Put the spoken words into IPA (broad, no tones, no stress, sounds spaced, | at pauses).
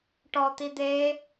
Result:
ʈ ɔ t̪ i d̪ e